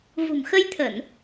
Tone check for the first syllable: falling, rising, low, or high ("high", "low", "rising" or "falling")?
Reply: low